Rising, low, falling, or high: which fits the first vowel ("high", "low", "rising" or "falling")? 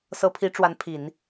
rising